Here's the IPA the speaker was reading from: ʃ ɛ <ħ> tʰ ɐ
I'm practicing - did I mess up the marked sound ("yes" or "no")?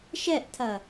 yes